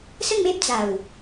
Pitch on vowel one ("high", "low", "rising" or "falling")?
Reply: falling